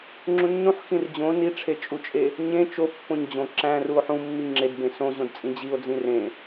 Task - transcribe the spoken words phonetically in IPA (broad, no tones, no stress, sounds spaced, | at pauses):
ŋ͡ǁ ũ nː ũ ħ x ĩ r d͡ʑ õ n i ʈ͡ʂʰ e t͡ʃʼ u t͡ʃʼ e | ɲ ẽ t͡ʃ o pː õ ɲ d͡ʑ õ ǁ æ̃ r u o̯ ħ ũ mː i ŋ͡ǁ e d b ẽ s õ ʑ õ d t͡sʼ ĩ d͡ʑ i o̯ d͡z ĩ r ẽ